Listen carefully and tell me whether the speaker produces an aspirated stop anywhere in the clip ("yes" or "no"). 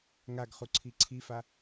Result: yes